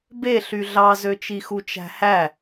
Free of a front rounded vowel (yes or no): no